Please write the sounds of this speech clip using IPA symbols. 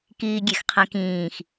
k iː ɡʲ e x qʰ ɛ̃ k ĩː x

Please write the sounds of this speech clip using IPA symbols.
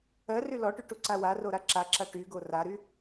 ɜ r y l ɔ ʈ y ʈ u ǀ a w a r o ɾ a ǁ a ǁ a ʈ y ɡ o r a ɾ y

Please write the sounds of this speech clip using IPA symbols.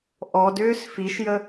ʔ ɔ d ʏː s f i ʃ j ə

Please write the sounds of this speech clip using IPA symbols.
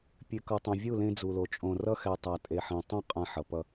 pʲ ʉ˨ k ʌ˨ tˤ ɛ̃˨ vʲ u˦˨ l ẽ˦ d͡z u˨ l o˨ t͡ʃʼ õ˨ r ʌ˦ x ɛ˨ tˤ a˨ tʼ e˨ ħ ẽ˨ tˤ õ˦ qʼ ã˦ ħ ʌ˨ p ʌ˦

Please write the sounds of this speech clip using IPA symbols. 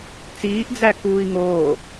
t͡s iː ʔ d͡z æ k uː i̯ ŋ oː

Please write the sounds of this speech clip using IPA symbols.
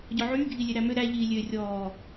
ɟ ɔ ʕ yː ɡʱ i lʲ e ɾ æ m ø ɾ æ ʎ iː lʲ ø rʲ ɔː

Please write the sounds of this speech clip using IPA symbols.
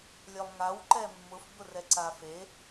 lʲ œ lˠ ŋ a w ǃ ɛ mː ʊ f b ʊ r ɛ ǀ a f e

